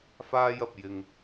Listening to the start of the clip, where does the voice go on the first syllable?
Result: high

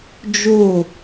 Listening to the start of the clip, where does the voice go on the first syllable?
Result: falling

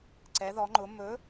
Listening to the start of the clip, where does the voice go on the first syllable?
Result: rising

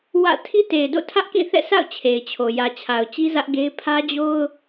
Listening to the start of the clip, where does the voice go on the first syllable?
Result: falling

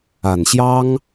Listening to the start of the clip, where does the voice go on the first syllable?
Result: low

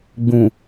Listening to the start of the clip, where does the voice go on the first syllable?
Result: low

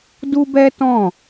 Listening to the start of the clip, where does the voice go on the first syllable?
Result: high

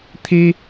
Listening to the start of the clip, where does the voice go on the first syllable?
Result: high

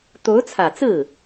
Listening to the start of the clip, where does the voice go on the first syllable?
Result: rising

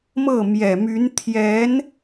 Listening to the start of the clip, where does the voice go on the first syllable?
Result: falling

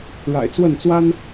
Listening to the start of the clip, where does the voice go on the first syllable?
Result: low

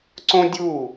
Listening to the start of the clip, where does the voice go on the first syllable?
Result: high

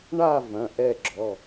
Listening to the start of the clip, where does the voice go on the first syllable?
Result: falling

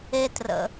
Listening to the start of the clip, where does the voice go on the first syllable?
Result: low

